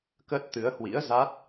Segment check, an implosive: absent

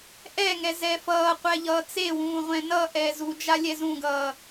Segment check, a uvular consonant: present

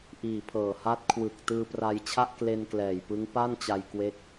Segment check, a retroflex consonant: absent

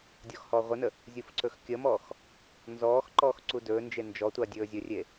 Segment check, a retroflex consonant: absent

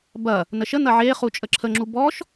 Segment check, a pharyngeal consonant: present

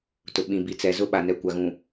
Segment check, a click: absent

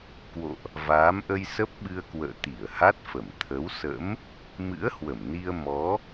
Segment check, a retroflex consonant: absent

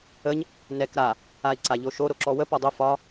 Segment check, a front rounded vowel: absent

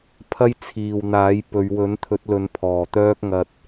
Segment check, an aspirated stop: present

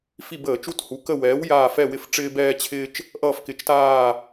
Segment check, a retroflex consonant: present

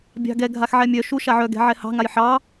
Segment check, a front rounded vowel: present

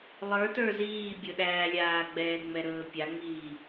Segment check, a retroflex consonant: absent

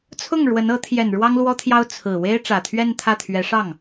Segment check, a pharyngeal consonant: absent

